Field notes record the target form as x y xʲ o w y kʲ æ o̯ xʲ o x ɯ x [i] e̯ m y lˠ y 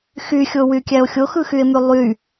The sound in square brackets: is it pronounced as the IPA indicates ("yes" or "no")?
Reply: no